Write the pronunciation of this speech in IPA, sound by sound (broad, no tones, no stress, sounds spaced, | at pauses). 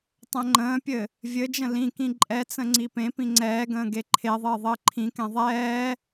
tˤ ɛ̃ ŋ͡ǃ ə̃ː pʲ ɘ | vʲ ɘ d͡ʒ ə̃ l ĩ k ĩ ǃʼ ɛ t͡s ə̃ ŋ͡ǀ i p ẽ p ĩ ŋ͡ǀ ɛː ɡ ə̃ː ɡ e ǃʰ e ðˤ ɘː ðˤ ɘː ǃʰ ĩ k ɛ̃ ðˤ ɛː